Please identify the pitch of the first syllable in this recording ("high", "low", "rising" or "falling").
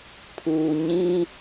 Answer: low